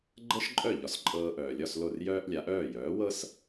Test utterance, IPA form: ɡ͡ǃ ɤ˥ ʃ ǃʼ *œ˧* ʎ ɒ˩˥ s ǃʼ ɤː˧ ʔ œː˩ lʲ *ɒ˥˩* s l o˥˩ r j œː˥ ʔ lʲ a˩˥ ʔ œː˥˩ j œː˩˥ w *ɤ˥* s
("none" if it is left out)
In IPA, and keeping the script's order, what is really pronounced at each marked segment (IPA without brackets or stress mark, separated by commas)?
œ˥˩, ɒ˥˩, ɤ˥